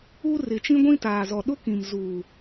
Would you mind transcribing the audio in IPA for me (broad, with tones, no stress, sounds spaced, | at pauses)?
u˦ r ɪ˨ t͡ʃ ĩ˦ ɡʷ ĩ˦ t aː˨ z ɔ˨ ɗ ʊ˦ k ĩ˨ m z u˨